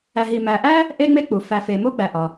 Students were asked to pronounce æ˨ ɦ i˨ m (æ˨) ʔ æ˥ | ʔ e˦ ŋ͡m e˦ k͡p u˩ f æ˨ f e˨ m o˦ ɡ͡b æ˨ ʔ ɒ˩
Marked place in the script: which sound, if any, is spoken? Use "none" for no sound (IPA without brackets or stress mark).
æ˨